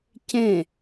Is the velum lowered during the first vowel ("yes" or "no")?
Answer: yes